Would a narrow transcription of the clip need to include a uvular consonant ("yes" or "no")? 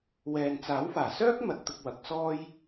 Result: no